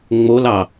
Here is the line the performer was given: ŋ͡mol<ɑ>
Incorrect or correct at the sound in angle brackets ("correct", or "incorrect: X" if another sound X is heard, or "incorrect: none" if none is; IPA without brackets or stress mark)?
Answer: correct